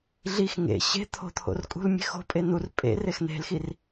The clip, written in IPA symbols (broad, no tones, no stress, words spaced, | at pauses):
ɮix ŋḛ ɕe̤ t̪ʰo̤t̪ʰo̰r kʼṳlmʲe̤xo̤pʼe nur pʼḛ rexn̪e̤lxir